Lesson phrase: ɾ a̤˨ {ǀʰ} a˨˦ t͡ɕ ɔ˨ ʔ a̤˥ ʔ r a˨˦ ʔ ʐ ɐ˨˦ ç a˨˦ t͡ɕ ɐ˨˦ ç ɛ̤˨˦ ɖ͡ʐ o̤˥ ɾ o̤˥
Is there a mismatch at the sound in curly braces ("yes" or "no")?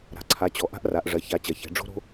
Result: no